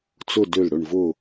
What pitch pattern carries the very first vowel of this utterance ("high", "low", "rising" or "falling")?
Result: falling